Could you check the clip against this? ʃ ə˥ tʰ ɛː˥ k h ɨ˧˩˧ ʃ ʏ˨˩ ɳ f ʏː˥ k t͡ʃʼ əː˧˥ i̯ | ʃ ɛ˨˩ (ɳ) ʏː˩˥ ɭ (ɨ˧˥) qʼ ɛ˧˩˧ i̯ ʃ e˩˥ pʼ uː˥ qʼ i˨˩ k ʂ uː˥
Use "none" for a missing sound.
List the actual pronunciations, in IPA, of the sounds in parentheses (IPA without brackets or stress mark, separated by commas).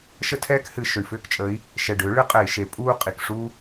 ɖ, ɨ˧˥